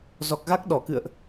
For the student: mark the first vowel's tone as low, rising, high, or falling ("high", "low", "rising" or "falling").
low